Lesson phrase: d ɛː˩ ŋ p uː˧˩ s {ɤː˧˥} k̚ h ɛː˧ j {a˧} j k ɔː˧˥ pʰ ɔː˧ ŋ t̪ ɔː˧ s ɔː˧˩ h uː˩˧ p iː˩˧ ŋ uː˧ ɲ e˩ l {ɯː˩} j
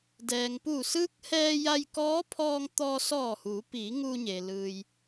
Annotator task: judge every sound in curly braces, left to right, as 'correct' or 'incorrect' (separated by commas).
incorrect, correct, correct